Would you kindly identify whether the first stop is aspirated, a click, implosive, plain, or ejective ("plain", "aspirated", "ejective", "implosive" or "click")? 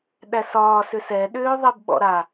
implosive